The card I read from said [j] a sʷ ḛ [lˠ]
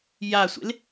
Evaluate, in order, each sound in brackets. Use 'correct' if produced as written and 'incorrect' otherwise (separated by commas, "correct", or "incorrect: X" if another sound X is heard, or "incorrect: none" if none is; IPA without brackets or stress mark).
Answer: correct, incorrect: l